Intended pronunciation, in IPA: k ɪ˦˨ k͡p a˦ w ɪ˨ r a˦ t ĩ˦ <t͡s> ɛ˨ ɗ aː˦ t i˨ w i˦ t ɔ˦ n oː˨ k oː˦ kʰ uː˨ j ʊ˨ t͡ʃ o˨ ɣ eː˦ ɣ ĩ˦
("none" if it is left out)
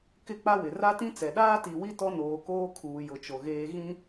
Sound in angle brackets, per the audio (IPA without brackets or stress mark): t͡s